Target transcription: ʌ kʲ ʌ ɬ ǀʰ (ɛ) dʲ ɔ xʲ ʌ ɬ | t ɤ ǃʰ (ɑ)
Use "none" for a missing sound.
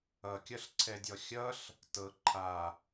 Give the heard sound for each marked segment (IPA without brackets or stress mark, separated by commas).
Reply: ɛ, a